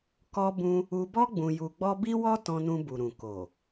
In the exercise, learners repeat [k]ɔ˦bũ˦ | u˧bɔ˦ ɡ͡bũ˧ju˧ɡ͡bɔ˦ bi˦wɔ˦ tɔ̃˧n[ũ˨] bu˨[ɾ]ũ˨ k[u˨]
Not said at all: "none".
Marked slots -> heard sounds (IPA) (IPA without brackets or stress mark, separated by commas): k, ũ˧, ɾ, o˨